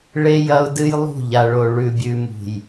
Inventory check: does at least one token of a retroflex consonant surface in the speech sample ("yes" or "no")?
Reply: yes